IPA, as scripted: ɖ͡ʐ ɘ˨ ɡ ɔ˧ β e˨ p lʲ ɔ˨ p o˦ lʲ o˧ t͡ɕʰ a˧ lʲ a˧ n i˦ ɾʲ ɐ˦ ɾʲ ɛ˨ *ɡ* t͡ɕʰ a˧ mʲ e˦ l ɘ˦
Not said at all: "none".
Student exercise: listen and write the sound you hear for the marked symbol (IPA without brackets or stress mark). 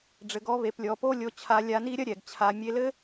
ɡ